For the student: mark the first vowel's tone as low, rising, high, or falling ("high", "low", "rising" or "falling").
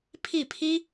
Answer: falling